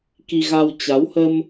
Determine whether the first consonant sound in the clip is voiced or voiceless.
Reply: voiceless